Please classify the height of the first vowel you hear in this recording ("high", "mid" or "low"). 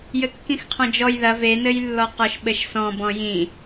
mid